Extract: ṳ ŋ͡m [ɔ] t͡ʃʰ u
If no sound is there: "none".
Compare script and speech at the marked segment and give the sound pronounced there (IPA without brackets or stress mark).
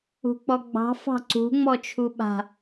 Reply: ɔ